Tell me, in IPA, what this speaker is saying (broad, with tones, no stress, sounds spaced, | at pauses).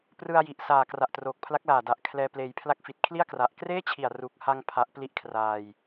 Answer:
p r ɯ˧ a̯ j i˨˩ ʔ s aː˨˩ k r a˨˩ ʔ t r oː˨˩ k̚ pʰ l a˦˥ k̚ l aː˨˩ d a˨˩ ʔ kʰ l ɛː˧ p l eː˧ j pʰ l a˦˥ k̚ f i˨˩ t̚ kʰ l i˥˩ a̯ k r a˨˩ ʔ k r eː˥˩ t͡ɕʰ i˨˩ a̯ r u˨˩ k̚ h a˧ ŋ pʰ a˦˥ ʔ p l i˥˩ ʔ kʰ r aː˧ j